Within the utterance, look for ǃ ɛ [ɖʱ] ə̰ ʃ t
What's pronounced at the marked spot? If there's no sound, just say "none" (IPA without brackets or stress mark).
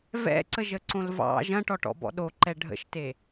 ɖʱ